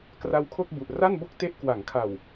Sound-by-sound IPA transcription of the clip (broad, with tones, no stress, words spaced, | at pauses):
kra˧wkʰo˥˩k̚bu˨˩ʔ ra˥˩nbo˥˩k̚te˦˥ʔ kwa˩˦ŋkʰa˨˩w